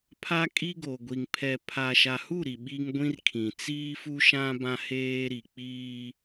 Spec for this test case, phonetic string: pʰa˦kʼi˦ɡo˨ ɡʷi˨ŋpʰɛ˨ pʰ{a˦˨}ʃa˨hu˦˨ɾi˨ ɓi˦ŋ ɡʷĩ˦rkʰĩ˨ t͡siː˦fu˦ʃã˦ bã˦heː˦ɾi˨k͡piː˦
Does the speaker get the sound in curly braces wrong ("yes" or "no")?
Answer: yes